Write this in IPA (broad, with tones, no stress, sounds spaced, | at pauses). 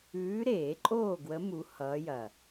ʉː˧˥ ɾ eː˨˩˦ ǃʼ oː˥˨ ɡ w ə˧˥ m u˧˥ h ʌː˧˥ j ɐ˨˩